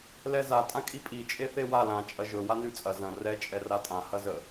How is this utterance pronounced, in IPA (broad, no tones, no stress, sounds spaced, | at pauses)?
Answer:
l ɛ z a tʼ ã kʼ i pʼ i t͡ʃʼ e θ e w a l ã t͡ʃʼ ɐ ʒ ɵ w a n ʉ t͡sʼ ɐ z ɐ̃ r ɛ t͡ʃʼ ɛ r a tʼ ã h ɐ z ə